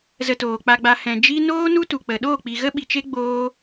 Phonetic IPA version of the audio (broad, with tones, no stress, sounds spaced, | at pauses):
z ə˧ t oː˨ k͡p a˧ ɡ͡b a˧ h ɛ̃˨ d͡ʒ i˦ n oː˦ n u˦ t u˨ k͡p ə˨ ɗ oː˦˨ k͡p i˨ ɣ ə˦ ɓ i˨ t͡ʃ e˦ ɡ͡b oː˦